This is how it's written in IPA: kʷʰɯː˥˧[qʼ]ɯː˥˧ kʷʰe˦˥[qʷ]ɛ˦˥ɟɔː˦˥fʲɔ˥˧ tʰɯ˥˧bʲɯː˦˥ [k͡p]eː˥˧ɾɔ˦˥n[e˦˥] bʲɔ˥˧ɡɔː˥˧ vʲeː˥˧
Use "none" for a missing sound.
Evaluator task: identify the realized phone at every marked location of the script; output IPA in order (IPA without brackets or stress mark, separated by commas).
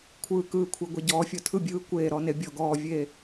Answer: k, ɡʷ, kʷ, e˦˥